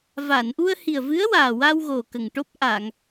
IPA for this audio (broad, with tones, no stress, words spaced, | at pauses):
va˨˩˨nʔu˧ə̯hi˨˩ə̯vɨ˧˥ə̯ waː˨˩wa˧wɣo˨˩ kə˨˩ŋʈo˦˥p̚ ʔa˨˩˨ŋ